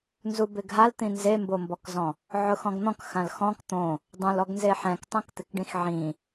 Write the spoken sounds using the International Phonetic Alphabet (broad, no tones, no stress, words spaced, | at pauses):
nzubɪɡɦalt̪ĩ nzembombɔkzɔ̃ | ʕʊxɔ̃ɡn̪ɔ̃k xãlxɔ̃k t̪õ | dˤõlɔɡnze ħɛ̃ktˤɛ̃kt̪ɪkɖĩx ʕĩ